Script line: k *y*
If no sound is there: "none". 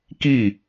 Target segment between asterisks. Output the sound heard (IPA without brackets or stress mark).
i